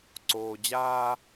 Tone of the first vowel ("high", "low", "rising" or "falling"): low